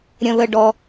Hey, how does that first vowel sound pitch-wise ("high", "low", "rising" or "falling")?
low